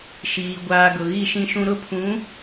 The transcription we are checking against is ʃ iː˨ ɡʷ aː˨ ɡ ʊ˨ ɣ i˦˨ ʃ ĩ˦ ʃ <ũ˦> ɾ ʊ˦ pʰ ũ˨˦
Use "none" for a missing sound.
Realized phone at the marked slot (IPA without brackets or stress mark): ũ˦